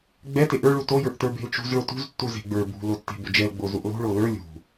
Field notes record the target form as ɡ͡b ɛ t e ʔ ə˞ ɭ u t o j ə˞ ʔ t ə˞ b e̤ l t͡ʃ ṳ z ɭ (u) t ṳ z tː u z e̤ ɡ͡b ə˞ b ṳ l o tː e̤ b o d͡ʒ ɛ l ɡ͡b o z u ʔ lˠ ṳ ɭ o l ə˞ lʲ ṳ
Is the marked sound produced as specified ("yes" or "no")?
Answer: no